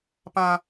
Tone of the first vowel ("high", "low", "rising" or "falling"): high